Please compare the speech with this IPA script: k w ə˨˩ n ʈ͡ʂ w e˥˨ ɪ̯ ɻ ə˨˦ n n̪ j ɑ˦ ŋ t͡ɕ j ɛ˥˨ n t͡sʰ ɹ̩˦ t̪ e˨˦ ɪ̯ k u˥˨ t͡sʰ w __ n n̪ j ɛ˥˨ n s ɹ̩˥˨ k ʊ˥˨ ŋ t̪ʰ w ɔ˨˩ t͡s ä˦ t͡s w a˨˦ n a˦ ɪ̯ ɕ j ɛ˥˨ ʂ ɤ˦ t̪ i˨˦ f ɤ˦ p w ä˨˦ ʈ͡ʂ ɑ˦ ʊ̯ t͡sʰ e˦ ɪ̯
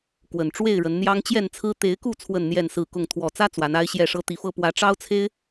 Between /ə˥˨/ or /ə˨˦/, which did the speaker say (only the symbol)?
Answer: ə˥˨